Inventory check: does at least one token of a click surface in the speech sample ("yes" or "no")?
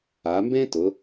no